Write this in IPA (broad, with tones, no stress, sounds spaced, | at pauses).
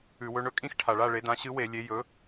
ʉ˧˩˧ w ɵ˧˥ ɳ ɵ˧˥ kʼ ĩ˥˨ x ʈʰ a˨˩ ɭ a˥˨ ɭ e˩˥ d ã˩˥ ɕ ɨ˧˥ w e˧˩˧ lʲ e˩˥ j ɵ˩˥